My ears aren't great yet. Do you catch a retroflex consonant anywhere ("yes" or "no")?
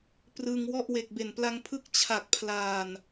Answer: no